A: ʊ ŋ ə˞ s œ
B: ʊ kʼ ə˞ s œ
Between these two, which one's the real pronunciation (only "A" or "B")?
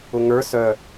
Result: A